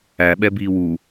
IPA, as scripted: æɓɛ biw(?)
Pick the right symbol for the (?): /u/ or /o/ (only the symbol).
u